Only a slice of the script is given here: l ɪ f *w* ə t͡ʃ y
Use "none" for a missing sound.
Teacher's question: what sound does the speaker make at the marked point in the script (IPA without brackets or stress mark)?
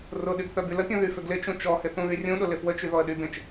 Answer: w